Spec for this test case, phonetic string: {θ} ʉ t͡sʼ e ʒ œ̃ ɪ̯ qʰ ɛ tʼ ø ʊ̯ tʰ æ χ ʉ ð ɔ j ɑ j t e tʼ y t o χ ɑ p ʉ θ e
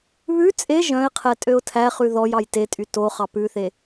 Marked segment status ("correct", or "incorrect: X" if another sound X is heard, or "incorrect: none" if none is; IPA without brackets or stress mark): incorrect: β